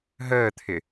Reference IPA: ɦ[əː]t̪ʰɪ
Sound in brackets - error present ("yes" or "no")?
no